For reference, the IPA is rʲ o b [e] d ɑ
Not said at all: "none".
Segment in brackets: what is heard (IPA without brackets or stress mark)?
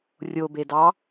e